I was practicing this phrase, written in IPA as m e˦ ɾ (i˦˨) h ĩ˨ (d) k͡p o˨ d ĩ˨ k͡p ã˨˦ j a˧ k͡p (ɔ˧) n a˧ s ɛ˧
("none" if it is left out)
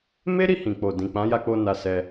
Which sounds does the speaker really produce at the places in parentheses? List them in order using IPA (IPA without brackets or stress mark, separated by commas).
i˦˨, none, o˧